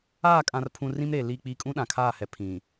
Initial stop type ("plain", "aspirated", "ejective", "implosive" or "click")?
ejective